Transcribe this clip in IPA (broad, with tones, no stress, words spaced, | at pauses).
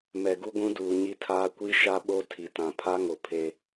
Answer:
mɛ˨ɡu˦ɡʷũ˦duː˨ ɲi˦tʰaː˦ kʷi˦ ʃa˦ɓo˦ tʰi˨tã˨ pʰa˦ŋo˨ pʰe˦